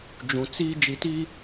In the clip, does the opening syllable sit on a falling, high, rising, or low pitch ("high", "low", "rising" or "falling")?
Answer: low